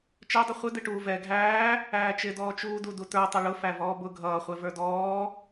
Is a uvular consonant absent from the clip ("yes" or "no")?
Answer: no